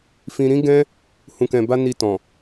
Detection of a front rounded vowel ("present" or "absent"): absent